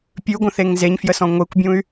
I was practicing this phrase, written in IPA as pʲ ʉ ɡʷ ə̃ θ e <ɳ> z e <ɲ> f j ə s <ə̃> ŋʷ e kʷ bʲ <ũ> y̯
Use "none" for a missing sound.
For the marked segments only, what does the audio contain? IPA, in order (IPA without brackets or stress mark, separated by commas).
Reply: ŋ, ɲ, ɔ̃, ũ